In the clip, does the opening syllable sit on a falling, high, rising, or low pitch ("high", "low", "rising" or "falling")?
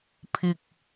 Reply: low